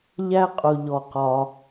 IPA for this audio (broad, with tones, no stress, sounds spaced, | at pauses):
ʎ æ˥ qʼ ʊ˩ ʎ ɔ˩ q ɒ˩